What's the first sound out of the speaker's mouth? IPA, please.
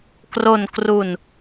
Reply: k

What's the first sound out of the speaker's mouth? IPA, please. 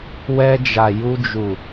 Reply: w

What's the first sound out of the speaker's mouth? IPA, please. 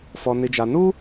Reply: f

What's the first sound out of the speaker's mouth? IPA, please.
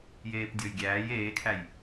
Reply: j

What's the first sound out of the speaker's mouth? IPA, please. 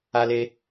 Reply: a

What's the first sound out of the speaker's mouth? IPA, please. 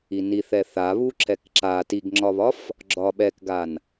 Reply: i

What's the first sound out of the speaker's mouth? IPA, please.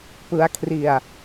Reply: p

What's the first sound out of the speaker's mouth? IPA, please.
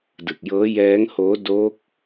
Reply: d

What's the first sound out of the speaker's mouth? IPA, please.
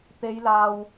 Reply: t̪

